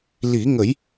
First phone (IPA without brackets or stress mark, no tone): l